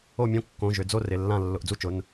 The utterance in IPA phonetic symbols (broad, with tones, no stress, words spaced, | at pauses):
o˥˨mʲõ˥˨ kːõ˩˧˩ ʒʏ˩˧˩d͡zo˥˨rɪ˩˧˩ lːã˥˨ lːʊ˩˧˩ʔd͡zu˥˨t͡ʃʊ˩˧˩n